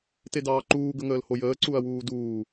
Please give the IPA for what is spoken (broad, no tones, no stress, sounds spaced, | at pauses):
t e d ɑː ǃ uː ɡ ə ŋ əː l h o j əː ǀ u ɐ̯ w uː d uː